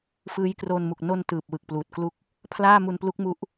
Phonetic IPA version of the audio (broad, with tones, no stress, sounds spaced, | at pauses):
f ɯː˦˥ j k r oː˧ n m u˨˩ k̚ n o˧ n t ɯː˨˩ p̚ w ɯ˨˩ k̚ p l uː˨˩ t̚ k l u˥˩ k̚ | pʰ l aː˥˩ m u˧ n p l u˦˥ k̚ m u˦˥ ʔ